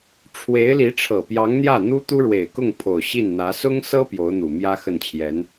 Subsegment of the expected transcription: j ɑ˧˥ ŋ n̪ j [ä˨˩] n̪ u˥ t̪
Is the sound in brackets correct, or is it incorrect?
incorrect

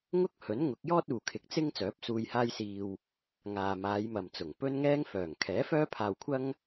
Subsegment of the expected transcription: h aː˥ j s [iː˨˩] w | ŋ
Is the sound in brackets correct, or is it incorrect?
incorrect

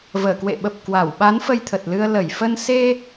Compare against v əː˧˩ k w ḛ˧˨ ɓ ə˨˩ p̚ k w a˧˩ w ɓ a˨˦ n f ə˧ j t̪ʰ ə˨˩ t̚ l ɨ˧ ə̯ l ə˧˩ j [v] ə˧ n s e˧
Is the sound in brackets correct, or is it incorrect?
incorrect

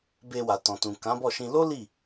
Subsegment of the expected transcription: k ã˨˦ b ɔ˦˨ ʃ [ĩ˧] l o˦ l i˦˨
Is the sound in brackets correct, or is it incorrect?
correct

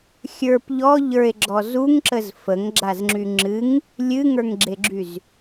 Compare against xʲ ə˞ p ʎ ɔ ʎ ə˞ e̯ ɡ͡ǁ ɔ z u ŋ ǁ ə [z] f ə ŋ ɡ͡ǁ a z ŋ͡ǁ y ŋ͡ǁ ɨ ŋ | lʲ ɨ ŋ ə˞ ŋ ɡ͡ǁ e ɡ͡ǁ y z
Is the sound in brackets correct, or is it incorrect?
correct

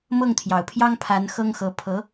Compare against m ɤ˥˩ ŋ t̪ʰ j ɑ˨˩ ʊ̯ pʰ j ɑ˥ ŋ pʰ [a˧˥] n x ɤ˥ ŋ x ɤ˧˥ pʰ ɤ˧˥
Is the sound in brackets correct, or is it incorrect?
correct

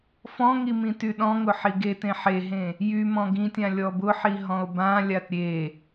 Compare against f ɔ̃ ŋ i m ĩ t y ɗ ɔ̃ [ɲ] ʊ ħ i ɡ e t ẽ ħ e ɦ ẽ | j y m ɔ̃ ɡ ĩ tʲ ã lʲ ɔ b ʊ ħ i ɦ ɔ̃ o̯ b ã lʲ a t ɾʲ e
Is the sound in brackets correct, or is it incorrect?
incorrect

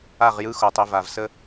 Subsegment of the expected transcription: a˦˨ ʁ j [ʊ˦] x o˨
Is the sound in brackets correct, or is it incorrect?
incorrect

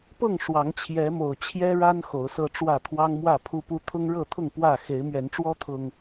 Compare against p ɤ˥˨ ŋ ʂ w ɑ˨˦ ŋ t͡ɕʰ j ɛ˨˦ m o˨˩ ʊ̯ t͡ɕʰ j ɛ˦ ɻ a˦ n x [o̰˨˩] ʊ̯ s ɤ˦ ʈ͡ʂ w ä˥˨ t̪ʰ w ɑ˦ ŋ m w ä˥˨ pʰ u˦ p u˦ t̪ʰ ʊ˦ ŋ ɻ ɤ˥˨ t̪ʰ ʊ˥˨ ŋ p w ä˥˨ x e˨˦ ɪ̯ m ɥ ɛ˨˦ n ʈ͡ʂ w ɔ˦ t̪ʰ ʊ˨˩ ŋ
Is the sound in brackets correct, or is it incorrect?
incorrect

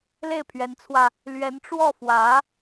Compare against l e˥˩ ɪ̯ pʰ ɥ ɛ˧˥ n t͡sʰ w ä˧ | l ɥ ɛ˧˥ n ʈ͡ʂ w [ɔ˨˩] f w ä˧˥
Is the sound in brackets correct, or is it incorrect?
incorrect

